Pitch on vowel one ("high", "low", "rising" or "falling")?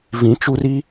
rising